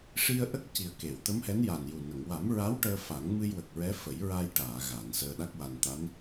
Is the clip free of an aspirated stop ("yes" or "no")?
yes